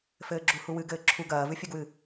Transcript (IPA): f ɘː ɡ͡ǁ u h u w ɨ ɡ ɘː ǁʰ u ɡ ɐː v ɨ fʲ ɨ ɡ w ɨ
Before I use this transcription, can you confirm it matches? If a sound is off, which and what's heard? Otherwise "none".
none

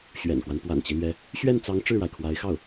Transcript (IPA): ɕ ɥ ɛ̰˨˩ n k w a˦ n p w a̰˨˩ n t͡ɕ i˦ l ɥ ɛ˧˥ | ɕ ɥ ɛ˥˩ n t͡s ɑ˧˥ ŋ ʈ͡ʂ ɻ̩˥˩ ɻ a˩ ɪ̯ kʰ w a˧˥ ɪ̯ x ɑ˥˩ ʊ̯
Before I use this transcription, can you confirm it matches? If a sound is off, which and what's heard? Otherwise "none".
none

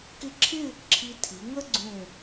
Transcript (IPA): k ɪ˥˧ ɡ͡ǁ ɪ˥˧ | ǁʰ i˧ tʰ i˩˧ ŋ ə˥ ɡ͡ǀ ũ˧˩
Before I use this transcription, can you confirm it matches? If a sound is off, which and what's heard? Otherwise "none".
ɡ͡ǁ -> ǁʰ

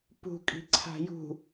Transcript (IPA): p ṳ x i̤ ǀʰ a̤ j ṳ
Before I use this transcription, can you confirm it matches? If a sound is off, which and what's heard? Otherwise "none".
x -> kʼ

